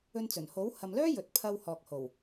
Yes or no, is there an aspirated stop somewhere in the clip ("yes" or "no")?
yes